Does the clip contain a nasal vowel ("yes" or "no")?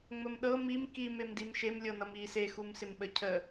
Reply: no